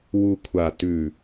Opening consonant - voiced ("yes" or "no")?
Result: yes